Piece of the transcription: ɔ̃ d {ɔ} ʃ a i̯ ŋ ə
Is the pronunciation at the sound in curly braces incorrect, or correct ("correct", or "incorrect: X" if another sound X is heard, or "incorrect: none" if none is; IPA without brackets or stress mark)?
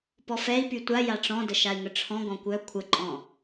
incorrect: ə